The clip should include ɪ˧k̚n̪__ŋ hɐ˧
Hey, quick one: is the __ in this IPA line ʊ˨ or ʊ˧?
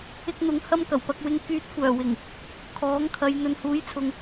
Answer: ʊ˨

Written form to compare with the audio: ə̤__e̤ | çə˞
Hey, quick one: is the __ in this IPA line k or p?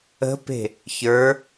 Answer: p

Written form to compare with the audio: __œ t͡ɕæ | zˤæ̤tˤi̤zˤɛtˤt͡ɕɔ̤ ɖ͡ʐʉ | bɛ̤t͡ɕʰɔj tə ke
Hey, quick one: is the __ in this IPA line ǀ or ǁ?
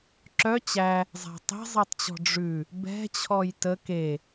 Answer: ǁ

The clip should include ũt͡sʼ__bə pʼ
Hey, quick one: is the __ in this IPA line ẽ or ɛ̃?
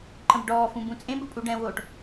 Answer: ẽ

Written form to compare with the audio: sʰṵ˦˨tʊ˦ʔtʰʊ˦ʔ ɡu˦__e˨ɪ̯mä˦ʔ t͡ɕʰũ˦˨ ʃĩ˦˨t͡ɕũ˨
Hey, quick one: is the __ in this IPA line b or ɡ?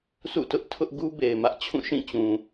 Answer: b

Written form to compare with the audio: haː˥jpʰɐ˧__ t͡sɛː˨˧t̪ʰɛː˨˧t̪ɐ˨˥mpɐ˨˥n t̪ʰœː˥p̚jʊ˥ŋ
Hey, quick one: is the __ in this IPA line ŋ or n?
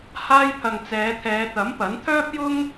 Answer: ŋ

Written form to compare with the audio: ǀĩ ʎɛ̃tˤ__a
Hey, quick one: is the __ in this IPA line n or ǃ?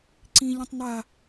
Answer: n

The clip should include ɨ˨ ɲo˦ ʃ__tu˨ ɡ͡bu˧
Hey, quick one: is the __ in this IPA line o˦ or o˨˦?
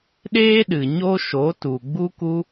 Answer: o˨˦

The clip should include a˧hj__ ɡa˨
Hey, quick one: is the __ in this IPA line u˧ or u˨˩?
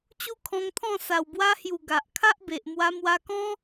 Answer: u˨˩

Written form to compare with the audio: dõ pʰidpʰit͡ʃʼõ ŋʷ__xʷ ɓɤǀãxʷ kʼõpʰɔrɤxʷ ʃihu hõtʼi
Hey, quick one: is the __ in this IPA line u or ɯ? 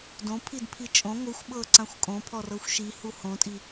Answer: ɯ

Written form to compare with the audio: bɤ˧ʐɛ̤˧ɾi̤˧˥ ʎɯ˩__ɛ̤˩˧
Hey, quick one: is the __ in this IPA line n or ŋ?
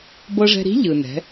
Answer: n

